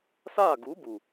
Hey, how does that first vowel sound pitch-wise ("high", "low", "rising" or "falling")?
falling